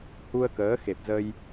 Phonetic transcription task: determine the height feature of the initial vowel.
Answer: high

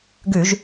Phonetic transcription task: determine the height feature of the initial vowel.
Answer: high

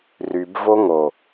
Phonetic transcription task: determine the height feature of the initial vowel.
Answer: high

